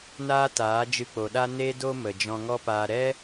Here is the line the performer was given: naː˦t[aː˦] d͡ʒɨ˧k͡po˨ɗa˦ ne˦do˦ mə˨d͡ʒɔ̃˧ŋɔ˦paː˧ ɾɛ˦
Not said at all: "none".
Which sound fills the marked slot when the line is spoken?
aː˨˦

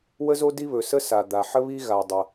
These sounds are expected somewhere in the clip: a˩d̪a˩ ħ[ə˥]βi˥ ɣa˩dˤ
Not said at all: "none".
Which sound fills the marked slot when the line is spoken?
ə˥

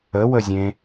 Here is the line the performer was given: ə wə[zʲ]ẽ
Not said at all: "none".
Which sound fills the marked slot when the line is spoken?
zʲ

